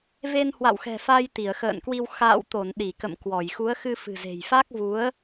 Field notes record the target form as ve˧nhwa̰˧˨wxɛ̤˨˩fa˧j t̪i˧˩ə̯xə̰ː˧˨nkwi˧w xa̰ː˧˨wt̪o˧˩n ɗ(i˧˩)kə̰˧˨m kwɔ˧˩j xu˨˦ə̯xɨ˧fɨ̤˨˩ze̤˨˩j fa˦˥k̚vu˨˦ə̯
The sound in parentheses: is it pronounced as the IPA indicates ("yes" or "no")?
yes